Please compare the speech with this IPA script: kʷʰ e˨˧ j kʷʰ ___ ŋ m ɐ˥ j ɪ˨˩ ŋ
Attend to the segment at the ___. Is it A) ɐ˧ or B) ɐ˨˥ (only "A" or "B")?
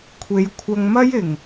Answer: A